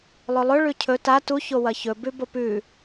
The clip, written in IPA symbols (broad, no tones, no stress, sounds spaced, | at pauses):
lˠ ɵ lˠ ɵ ɭ ʉ cʰ ɵ t a t u ç o w ɐ ç ɵ b ʉ b o p ʉ